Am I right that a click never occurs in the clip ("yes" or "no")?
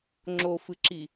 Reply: no